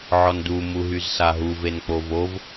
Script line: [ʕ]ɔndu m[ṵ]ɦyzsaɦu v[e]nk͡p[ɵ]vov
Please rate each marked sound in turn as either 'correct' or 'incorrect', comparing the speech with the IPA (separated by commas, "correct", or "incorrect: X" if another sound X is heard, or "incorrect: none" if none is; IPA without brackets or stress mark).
correct, incorrect: u, correct, incorrect: o